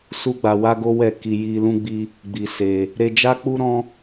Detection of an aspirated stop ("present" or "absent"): absent